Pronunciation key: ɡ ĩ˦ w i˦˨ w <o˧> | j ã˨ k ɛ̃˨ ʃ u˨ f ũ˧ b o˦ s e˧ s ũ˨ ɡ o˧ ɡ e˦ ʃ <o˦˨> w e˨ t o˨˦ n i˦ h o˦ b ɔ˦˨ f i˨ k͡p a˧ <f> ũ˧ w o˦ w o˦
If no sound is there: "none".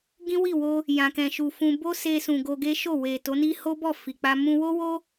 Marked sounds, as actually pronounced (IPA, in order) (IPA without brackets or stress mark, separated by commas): o˧, o˦˨, m